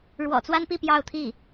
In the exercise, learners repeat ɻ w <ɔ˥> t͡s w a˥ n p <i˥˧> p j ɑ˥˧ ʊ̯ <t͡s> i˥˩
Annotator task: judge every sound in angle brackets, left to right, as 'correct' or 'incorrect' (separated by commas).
incorrect, correct, incorrect